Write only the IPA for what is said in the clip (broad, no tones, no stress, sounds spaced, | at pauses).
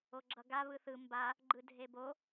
o ɡ͡ǁ ʌ ɡ a β ɯ θ ɯ m b a | ɡ͡ǃ ɯ dʱ e b o